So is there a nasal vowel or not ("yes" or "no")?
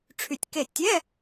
no